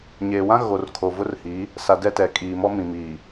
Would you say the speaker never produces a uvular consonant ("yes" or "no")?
yes